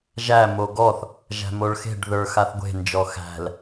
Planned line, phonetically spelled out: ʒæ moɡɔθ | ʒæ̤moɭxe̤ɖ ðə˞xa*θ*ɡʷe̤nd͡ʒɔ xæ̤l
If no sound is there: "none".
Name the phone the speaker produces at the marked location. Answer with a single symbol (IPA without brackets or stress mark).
θ